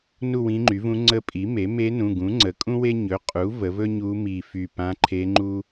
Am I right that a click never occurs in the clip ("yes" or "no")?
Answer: no